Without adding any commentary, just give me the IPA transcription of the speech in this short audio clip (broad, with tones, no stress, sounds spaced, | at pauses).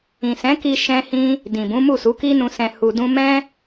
ĩ˨ s ɛ̃˨˦ k i˧ ʃ ɛ̃˦ h ĩ˦ | d ĩ˨ b ũ˨˦ m u˦˨ s u˨˦ k i˦ n ũ˧ s ɛ̃˧ h u˧ d ũ˦ m ɛ̃˦